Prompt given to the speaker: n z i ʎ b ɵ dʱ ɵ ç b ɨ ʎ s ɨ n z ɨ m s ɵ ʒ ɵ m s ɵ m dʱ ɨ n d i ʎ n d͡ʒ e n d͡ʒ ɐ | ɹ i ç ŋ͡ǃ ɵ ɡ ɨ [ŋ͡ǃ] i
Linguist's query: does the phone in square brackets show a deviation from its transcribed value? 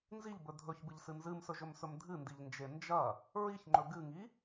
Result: yes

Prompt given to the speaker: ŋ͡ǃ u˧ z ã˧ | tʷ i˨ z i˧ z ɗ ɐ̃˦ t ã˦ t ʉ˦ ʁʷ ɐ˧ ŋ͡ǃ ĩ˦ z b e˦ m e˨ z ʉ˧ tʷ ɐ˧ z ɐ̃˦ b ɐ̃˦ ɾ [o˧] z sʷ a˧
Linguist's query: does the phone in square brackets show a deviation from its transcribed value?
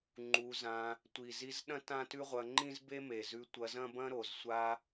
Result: yes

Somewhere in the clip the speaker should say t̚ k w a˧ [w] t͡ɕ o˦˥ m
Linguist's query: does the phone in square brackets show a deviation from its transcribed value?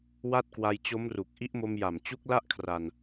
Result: yes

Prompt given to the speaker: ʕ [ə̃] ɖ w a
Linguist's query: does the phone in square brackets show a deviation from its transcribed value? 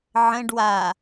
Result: no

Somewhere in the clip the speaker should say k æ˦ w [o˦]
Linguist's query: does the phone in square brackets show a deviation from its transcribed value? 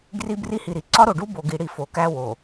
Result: yes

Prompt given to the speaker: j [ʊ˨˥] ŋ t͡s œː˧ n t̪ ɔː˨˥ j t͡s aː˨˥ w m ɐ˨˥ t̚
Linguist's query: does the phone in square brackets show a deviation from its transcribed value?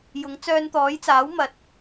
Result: no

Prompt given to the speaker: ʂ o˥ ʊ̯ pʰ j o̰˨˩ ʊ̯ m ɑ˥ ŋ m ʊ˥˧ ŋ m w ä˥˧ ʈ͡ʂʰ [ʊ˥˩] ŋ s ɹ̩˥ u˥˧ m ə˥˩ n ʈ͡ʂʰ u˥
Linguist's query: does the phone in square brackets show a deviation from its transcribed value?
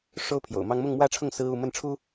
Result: no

